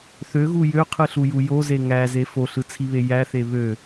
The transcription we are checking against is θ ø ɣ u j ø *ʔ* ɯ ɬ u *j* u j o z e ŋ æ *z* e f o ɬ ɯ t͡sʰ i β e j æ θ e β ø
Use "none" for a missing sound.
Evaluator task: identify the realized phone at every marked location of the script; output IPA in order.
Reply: qʰ, j, z

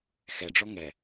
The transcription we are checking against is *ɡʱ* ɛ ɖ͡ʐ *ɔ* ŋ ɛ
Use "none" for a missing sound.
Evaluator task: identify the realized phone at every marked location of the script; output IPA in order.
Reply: x, ɔ

